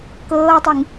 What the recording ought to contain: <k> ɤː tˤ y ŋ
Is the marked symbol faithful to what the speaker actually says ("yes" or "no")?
yes